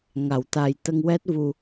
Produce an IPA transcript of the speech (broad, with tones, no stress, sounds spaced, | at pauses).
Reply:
ŋ a˨˩˨ w t̪ a˨˩ j t̪ ə˧ ŋ w ɛ˦˥ t̚ v u˧